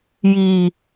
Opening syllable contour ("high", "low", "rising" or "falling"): low